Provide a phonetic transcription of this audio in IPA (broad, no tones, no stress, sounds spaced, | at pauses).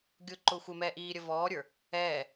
ɡʲ ʊ ǃ ʊː xʷ ɪ m ɛː ʔ iː ɾʲ ə v ɔː ɾʲ ə˞ | ɛː